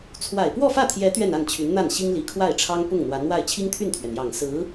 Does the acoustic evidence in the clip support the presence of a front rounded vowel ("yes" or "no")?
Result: yes